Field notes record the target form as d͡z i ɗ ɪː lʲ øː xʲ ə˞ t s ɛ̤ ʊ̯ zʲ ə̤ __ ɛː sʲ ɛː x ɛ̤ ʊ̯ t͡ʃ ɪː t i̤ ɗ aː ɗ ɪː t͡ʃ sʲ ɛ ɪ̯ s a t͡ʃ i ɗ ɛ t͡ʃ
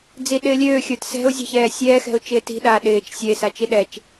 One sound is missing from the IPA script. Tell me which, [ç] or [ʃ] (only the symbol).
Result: ç